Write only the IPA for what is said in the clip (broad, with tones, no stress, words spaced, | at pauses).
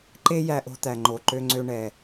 ǃe˥jæ˧ʔo̤˧t̪æ˩ ŋ͡ǃo˩ǃø˧ŋ͡ǀø˧ ɳɛ˩